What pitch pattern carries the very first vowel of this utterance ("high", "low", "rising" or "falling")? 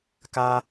high